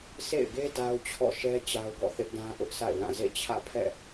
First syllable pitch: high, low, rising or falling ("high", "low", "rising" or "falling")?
falling